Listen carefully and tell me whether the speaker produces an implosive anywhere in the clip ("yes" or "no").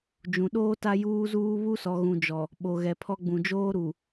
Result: yes